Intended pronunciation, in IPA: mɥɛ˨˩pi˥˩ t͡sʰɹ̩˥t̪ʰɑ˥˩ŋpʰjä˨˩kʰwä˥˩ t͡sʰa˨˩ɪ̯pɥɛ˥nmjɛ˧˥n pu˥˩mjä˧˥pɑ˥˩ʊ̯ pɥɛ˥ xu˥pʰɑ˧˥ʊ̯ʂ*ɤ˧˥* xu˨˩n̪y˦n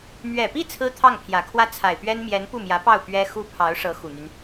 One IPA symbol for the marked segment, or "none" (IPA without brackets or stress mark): ɤ˧˥